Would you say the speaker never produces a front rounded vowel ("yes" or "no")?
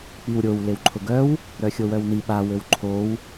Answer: no